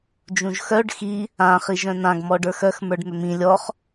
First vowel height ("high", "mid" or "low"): high